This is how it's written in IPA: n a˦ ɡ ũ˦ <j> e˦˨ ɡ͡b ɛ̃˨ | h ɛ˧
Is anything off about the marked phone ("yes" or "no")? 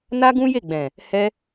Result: no